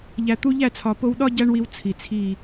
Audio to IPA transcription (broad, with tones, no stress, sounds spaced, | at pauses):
ʎ æ˨ t̪ u˧ ʎ æ˦˨ t͡sʰ ɒ˨ p o˧ w ɗ ɒ˦ ɟ æ˦ ɳ w i˧ w t͡sʰ i˨ t͡sʰ i˦˨